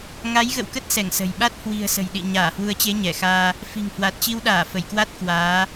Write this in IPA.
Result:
ŋ a˨˦ j ɣ ə̰˧˨ w k ə˦˥ t̚ s ɛ˧˩ ŋ s ə̤˨˩ j ɓ a˦˥ t̚ h w i̤˨˩ ə̯ s ə̤˨˩ j ɗ ḭ˧˨ ɲ aː˧˩ h w u˨˦ ə̯ t͡ɕ e˨˦ ɲ ɛ˧˩ x aː˧ | f i̤˨˩ ŋ h w a˨˩ t̚ t͡ɕ i˧ w ɗ aː˧˩ f ə˧˩ j k w a˦˥ t̚ k w aː˨˦

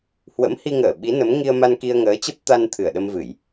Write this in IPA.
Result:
h w ə̰˧˥ m h i˧ ŋ əː˧˩ ɓ i˨˦ n ə˨˦ m ŋ i˧ ə̯ m a˧ n k i˧ ə̯ ŋ əː˨˦ t͡ɕ ə˦˥ p̚ t̪ a˧ n t̪ʰ ɨ˧˩ ə̯ ɗ ə˧ m v ɨ˧˩˨ j

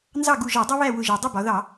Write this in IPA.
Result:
n z ɑ˥˨ ɡ u˧˩ ʒ ɒ˧˩˧ dˤ ʊ˥ β æ˥˨ w ʊ˧˩ ʒ ɜ˩ dˤ ə˥˨ b ɒ˩˧ ð ɑ˧˩˧

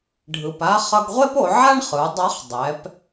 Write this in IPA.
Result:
ɖʱ ɯ˩ p a˧˥ χ ʌ˧ ɡ ʁʷ e˥ p o˩˧ ʕ a˥ ɳ χ ɯ˩˧ dˤ a˧˥ χ dˤ ɛ˩˧ p

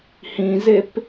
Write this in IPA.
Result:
h ĩ z e p

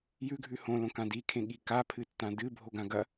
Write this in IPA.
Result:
j ʉ ɡʱ ʉ h õ l õ k ã d i kʰ ẽ ɠ i k a pʰ ɨ tː ã d ɨ bʱ o ɡ ã ɡ ɐ

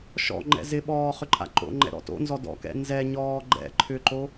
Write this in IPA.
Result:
ʃ ɔ̰ ŋ͡ǃ ɛ̰ z ɪ ɓ ɔː χ ʏ ǃʼ a̰ ǃ o̰ ŋ͡ǃ ɛ̰ ɾ ɔ̰ t o̰ n z ɔ d ɔ̰ k ɛ̰ n z ɛ ɲ ɔː ɡ͡ǃ ɛ̰ ǃʰ ʏ ǃ o

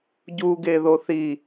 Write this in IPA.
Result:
ɟ u ɡ e ð o θ i

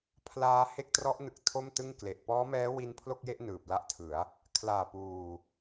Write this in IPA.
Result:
pʰ l aː˧ h e˥˩ k̚ t r ɔ˦˥ ʔ n ɯ˨˩ k̚ tʰ o˥˩ m t ɯ˥˩ ŋ k l e˨˩ ʔ p ɔː˦˥ m ɛː˦˥ w i˧ n pʰ l o˥˩ k̚ j e˥˩ ʔ n ɯː˨˩ p̚ l a˥˩ ʔ tʰ ɯ˩˦ a̯ | kʰ l aː˨˩ p uː˨˩

